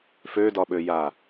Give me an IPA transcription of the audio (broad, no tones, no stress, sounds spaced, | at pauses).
f ø d ɒ ɓ ø j a